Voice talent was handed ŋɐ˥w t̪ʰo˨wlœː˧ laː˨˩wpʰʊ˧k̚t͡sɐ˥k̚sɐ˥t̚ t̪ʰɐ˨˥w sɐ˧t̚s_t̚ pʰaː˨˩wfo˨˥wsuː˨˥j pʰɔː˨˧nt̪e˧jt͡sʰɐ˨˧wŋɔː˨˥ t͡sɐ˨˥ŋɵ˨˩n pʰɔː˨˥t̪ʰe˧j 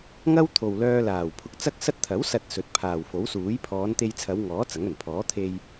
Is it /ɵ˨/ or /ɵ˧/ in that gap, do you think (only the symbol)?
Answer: ɵ˨